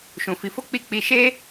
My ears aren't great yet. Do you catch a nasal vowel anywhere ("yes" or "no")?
yes